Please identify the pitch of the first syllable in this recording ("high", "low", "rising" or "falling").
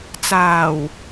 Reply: low